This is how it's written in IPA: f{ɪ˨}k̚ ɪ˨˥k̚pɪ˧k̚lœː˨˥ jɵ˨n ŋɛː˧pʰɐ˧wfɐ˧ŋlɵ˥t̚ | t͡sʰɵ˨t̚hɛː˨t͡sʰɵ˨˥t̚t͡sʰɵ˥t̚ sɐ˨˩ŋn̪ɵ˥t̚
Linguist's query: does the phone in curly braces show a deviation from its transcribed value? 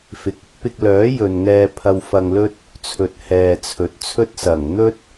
no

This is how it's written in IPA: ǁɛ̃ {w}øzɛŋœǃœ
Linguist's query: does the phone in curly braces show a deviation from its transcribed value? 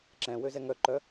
no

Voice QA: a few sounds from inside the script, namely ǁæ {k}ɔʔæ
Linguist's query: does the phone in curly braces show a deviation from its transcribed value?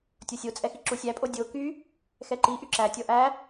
yes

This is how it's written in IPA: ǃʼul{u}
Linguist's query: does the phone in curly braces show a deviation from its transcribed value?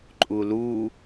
no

